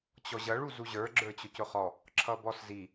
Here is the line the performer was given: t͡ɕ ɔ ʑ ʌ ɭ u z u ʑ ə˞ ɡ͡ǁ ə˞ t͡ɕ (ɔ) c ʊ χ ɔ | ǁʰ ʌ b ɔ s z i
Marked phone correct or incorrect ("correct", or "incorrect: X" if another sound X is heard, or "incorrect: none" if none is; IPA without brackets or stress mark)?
incorrect: ʊ